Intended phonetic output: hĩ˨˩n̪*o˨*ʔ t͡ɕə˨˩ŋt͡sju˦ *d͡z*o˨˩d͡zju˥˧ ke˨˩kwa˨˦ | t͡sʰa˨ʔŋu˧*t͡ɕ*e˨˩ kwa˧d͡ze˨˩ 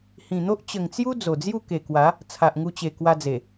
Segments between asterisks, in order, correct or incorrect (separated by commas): incorrect, correct, correct